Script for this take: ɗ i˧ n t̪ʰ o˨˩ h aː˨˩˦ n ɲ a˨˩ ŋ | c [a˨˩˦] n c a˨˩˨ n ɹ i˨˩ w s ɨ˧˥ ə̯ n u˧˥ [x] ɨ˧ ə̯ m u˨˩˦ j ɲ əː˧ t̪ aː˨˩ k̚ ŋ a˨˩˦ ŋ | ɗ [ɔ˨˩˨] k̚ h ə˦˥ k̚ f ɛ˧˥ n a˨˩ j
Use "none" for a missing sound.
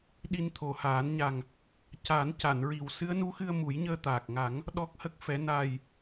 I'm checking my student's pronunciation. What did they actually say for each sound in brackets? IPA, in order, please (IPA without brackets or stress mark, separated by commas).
a˨˩˦, x, ɔ˦˥